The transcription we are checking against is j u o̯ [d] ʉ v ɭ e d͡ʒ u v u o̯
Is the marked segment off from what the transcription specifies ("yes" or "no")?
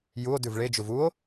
no